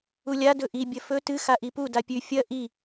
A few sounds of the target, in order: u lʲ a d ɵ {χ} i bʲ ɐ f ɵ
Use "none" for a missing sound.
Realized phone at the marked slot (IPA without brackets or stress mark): ʔ